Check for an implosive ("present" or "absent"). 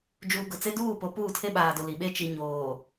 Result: present